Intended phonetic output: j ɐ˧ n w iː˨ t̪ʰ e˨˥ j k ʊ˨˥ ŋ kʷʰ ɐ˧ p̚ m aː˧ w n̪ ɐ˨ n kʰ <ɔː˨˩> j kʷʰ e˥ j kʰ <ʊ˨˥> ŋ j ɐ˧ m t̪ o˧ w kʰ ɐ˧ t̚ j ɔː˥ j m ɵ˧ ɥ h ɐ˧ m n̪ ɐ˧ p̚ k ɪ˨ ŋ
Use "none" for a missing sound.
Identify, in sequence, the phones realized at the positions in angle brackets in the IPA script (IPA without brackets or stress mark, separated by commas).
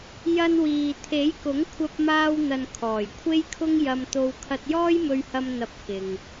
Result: ɔː˨˩, ʊ˥